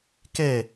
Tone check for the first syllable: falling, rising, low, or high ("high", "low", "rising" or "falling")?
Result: falling